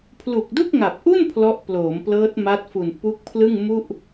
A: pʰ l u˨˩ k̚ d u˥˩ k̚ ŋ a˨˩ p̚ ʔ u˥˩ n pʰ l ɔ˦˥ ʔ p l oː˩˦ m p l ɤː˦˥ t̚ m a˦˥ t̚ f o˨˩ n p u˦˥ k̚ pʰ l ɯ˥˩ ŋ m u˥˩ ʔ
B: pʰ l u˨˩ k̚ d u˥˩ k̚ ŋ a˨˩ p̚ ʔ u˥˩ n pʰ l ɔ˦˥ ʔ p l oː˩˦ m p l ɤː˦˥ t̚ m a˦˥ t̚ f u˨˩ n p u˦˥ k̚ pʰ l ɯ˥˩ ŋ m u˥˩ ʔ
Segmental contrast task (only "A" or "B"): B